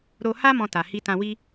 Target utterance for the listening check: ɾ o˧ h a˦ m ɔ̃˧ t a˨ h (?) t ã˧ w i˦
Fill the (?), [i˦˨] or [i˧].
i˧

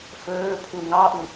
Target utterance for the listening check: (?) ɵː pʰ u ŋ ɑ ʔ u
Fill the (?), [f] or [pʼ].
f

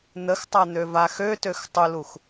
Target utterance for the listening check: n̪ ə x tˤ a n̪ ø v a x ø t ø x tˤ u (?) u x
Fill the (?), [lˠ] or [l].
l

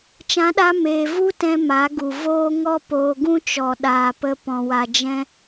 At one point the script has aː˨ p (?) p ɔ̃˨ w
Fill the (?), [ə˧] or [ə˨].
ə˧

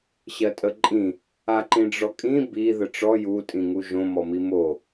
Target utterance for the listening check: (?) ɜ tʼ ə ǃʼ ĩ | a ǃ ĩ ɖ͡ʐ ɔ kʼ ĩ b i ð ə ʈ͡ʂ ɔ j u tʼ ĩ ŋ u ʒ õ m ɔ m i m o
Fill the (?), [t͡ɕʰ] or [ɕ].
ɕ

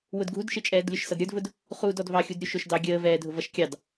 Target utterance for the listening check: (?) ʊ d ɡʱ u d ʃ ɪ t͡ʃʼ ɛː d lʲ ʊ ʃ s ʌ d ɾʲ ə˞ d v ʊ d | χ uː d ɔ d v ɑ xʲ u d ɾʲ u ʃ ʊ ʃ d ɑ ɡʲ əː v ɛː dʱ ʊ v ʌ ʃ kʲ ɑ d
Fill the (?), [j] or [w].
w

